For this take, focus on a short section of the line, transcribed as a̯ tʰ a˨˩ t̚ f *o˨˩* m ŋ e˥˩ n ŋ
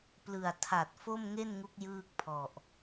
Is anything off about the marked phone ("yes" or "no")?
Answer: yes